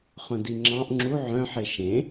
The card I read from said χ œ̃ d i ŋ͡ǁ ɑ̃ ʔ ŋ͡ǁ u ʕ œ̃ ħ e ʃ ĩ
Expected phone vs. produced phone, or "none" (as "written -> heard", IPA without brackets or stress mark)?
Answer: ĩ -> ẽ